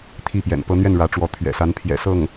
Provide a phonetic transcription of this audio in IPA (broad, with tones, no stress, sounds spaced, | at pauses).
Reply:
t̪ʰ i˥˩ p j ɛ̰˨˩ n p ɤ˥ n̪ ɥ ɛ˥˩ n ɻ ä˧˥ ʈ͡ʂ w ɔ˧˥ t̪ʰ ɥ ɛ̰˨˩ s a˧˥ n pʰ j ɛ̰˨˩ s ɤ˥˩ ŋ